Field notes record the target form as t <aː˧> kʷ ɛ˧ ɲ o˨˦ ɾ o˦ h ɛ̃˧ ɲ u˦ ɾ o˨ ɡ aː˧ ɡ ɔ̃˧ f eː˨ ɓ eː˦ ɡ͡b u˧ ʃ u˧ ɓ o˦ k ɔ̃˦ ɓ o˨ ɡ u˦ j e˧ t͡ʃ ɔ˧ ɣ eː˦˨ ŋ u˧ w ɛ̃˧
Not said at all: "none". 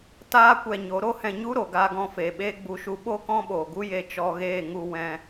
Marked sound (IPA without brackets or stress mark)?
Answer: aː˦